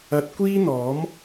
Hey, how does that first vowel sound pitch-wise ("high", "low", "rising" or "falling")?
rising